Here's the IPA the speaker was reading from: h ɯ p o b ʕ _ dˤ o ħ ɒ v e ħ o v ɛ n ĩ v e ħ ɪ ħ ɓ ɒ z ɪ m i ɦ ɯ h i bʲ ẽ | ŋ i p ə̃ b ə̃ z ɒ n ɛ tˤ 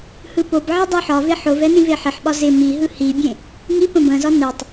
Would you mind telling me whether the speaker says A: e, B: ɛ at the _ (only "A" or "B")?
B